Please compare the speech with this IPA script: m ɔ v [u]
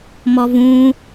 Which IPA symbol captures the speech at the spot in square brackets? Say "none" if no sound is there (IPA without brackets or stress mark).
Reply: ũ